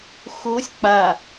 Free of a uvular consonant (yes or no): yes